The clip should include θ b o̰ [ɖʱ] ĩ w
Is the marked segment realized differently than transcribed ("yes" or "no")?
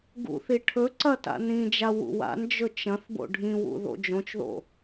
no